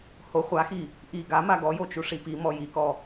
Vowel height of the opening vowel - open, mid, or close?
mid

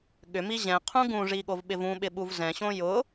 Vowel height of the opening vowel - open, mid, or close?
close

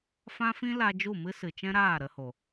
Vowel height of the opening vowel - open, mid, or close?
open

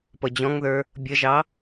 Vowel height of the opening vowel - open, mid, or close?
mid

